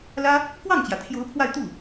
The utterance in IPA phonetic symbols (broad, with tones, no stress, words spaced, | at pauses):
lä˥ | kwɑ˥˩ŋt͡ɕjä˩t̪ʰjo˧˥ʊ̯ pʰwa˥˧ɪ̯t̪u˥˩